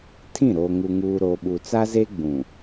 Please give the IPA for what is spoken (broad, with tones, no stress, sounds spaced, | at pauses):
tʰ ĩ˦˨ ɾ oː˦ ŋ u˦ ŋ uː˦ ɾ oː˨ ɓ u˨ t͡s a˦ z e˦ ɡ͡b ũ˨